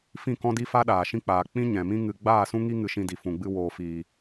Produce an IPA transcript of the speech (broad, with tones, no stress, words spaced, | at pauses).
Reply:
fĩ˦˨kɔ̃˦di˦fa˦ ɗaː˨ʃĩ˧k͡paː˨ k͡pĩ˦ ɲɛ̃˨mĩ˦ ŋɨ˧ ɡ͡baː˦˨sũ˦ŋi˦ ŋɨ˧ʃĩ˧ di˨fũ˨ɡ͡bɨ˧ woː˨fiː˨